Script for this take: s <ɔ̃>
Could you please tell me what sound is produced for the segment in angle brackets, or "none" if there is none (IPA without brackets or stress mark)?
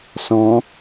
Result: ɔ̃